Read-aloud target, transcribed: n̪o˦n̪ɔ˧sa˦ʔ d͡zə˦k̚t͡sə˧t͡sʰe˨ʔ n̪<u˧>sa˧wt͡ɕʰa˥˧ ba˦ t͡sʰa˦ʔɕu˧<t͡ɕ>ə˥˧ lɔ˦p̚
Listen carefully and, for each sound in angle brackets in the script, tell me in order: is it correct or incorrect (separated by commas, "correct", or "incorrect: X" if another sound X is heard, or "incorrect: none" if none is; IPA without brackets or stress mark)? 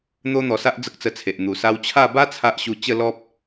incorrect: u˨˩, correct